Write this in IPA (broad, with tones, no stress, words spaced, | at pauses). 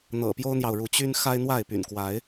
n̪ɤ̰˨˩ pjo˦ʊ̯n̪jɑ˨ʊ̯ɻu˨˦ t͡ɕy˦n xa˦ɪ̯n̪wa˥˨ɪ̯ py̰˨˩nkwa˨˦ɪ̯